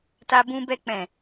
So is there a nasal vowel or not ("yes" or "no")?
yes